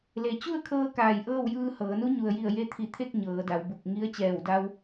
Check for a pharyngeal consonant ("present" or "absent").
absent